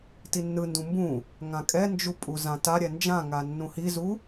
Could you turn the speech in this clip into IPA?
t i nː ɯ n d ũ m b ũ | ŋ ã kʼ ɛ n d͡ʒ u pʼ u z ã t a ɾʲ ɛ n d͡ʒ ã ŋ a nː ũ h i z u

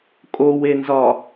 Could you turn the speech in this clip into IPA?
kʼ o w e n z ɒ

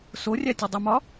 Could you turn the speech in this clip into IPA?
s o rʲ æ tʲ ɒ dˤ u m ɒ

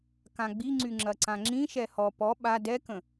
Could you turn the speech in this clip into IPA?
k ã ɡ͡b i ŋ͡ǀ y ŋ͡ǁ ɐ ǀ ã ŋ͡ǁ ĩ ʃ ɛ h ɔ p ɔ ɓ a d ɛ k ə̃

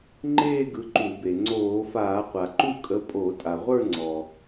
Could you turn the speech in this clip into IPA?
ŋ͡ǃ eː˥˧ ɡ ɯ˨˦ ǃ u˧˩˧ b e˩ ŋ͡ǀ oː˧˩˧ f aː˧˩˧ qʷ a˩ ǃ u˥˧ kʼ ə˨˦ pʼ o˧˩˧ tʼ a˩ ʁʷ ə˞˥˧ ŋ͡ǀ ɔ˩

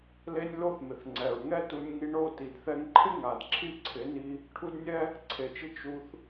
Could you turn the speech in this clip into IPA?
l e˦ nʲ l o˦ θ m ɪ˨ θ ŋ͡ǀ ɛ˨ ɹ ŋ ɛ˦ t u˧ nʲ ŋ i˧ ɳ o˦˨ t i˨ d θ ɛ˧ ŋ ǃʰ ɪ˦ ŋ a˨ d ǁʰ i˦˨ ǀʰ ɪ˨˦ n i˧ | ʈʰ u˦ d nʲ ɛ˦ | ǀʰ e˨ t͡ʃ ɪ˧ t͡ʃ u˧ θ

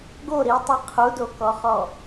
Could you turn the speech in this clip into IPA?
ɡ o ɾ i tˤ i qʰ u d o k ɔ χ ɔ

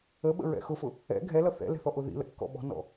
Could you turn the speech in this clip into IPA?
ə ɓ ə̰ ɹ ɛ̰ x ʊ f ʊ | ɛ̰ ɡʱ ɛ l ʌ θ ɛ̰ l ɛ̤ θ ɔ ʔ ʊ ð ḭ l ə̰ kː ɔ̰ ɓ ɔ̤ n ɔ̰

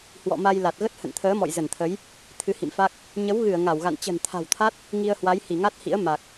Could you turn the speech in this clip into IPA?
h w ɔ̰˧˨ m a˧ j l a˨˩ t̚ ɣ ə˦˥ t̚ h ə̰˧˨ n t̪ʰ əː˨˦ m ɔ̰˧˨ j z ə˧˩ n t̪ʰ ə˨˦ j | t̪ʰ ɨ˨˦ h ḭ˧˨ m f a˦˥ k̚ | ɲ ə˨˦ w ɣ ɨ˧˩ ə̯ ŋ a˧˩ w ɣ a̰˧˨ n t͡ɕ ə̤˨˩ n t̪ʰ a̤˨˩ w t̪ʰ a˦˥ t̚ | ŋ i˧ ə̯ h w a˨˦ j h i˧˩ ŋ a˦˥ t̚ h ḭ˧˥ ə̯ m a˨˩ k̚

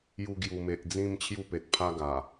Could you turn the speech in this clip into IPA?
j u˧ ɡ j u˨˩ m e˨ ʔ d͡z ĩ˥˧ m t͡ɕʰ j u˥˧ p e˨ t̚ pʰ a˦ ɡ a˨˩

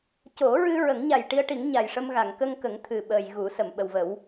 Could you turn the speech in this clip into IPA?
c o˨˩˦ ɹ ɨ˧ ɹ ə˨˩˦ ŋ ɲ a˨˩ j ʈ i˧ ə̯ ʈ i˨˩˦ ŋ ɲ a˨˩ j ʂ ə˧ m ɣ a˨˩˨ ŋ k ə˧ ŋ k ə˨˩˦ ŋ t̪ʰ ɨ˨˩ ɓ əː˨˩ j ɣ u˨˩˦ s ə˨˩˨ m ɓ ə˨˩ w v ə˨˩˦ w

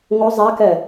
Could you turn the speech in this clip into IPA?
ŋ o zˤ a k ɛ

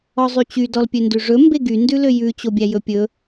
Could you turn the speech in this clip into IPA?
ɔ zˤ y t͡ɕ y d ɔ l pʲ ø n d ʉ ʐ ɵ m b e ɡ y n d ʉ l ø j ʉ t͡ɕ o bʲ æ j ɵ pʲ ɵ

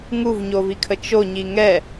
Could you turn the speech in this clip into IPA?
ŋ u v ɲ o v i kʰ ə t͡ʃ o ɲ i ŋ ɛ

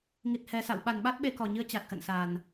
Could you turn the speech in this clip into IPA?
ŋ i˨˩ t̚ h ɛ˨˩ s a̰˧˨ w ɓ a˨˩ n ɓ a˦˥ t̚ ɓ e˧ k ɔ˨˩ ɲ ɨ˨˦ ə̯ t͡ɕ a˨˩ t̚ x ə̰˧˨ n s a˨˩ n

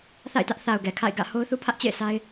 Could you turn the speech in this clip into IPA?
θ a̰˦˨ ɪ̯ t ä˦ ʔ θ a˨ ʊ̯ ɡ ɛ˨ kʰ a̰˦˨ ɪ̯ ɡ ä̰˦˨ h o˦ ʊ̯ θ u˦ pʰ ä˦ ʔ t͡ɕ ḛ˦˨ ɪ̯ sʰ a˦ ɪ̯

